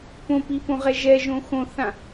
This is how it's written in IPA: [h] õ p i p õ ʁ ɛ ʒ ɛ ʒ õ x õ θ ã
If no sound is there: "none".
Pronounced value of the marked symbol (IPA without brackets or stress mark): p